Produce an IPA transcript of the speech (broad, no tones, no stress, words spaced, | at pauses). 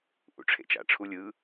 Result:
ʔṵʈ͡ʂʰḛt͡ʃa̰ʈ͡ʂʰu lʲɯ